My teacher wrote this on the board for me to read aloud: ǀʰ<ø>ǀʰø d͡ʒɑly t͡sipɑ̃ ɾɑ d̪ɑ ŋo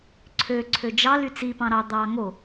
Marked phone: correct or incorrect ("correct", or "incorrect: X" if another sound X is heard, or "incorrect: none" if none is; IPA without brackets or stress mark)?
correct